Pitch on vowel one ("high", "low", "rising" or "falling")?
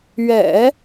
low